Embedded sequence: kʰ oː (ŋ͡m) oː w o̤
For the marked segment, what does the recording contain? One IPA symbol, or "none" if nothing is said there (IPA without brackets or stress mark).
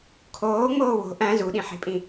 ŋ͡m